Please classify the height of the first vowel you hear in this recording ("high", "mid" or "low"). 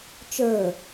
mid